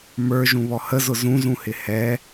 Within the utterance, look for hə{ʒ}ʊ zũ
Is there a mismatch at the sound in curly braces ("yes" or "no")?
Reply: yes